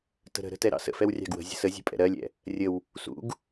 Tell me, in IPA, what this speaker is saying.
t ə̤ ɾ ə̤ ɾ ə̤ t ɛ ɾ ɑ̰ s ə̰ f ɛ w rʲ ɑ̤ ɡ w ə̤ zʲ ə̤ s ə zʲ ə̤ pʼ ɛ̰ ɾ ɜ lʲ ɛ̰ | rʲ ə w | s ṵ ɡ

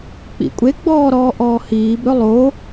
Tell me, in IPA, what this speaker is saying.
k͡p ḭ kʷʼ e ɡ͡b ɔː ɾ ɔː ʔ ɔː h iː b ɾ ɵ lˠ o

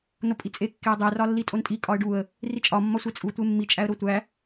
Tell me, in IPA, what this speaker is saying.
n o pʼ i t͡sʼ e kː e ə̯ dˤ e r ɒ lː i tʼ o n tʼ i kʼ ɒ ə̯ ɖ u ə̯ | r i t͡ʃʼ ɒ mː ɒ sʷ e t͡sʼ u tʷ e mː i t͡ʃʼ æ ə̯ ɾ o tʷ æ

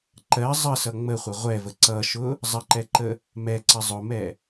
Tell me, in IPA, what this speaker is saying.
ǃ ɜ zˤ ə s ʌ ŋ͡m ə χʷ ʌ ʁʷ ɛ v ə ǀ ʌ ʃ ʊ | zˤ ə ǃ ɛ ǃ ə | m ɛ ǀ ə zˤ ʊ m ɛ

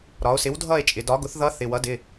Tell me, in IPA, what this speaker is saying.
ɾ ɒ˩˧ o̯ s ɪ˩˥ w dʱ ʌ˦˨ e̯ t͡ʃʼ ɪ˩˧ d ɒ˩˥ ɡ ʊ˩˥ θ ð ʌ˧˥ θ ɪ˩˧˩ w ʌ˩˥ d ɪ˩˧˩

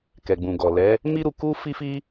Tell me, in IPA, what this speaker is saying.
k ɛ˨ ɡ͡b ũ˨ ɡ ɔ˨ l ɛ˨˦ | m i˦ ɾ u˧ k u˦ f i˦ f i˦

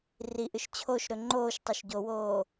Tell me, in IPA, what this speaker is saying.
r i ʔ ɨ ʃ t͡ɕʰ o ʃ ɾ ɵ ŋ͡ǃ oː ʃ tˤ o ʃ ɟ o w oː

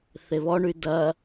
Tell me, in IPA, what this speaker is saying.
θ e β ɔ ɳ y d ɐ

